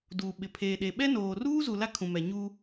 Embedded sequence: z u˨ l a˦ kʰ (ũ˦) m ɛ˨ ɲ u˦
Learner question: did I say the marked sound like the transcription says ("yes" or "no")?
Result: no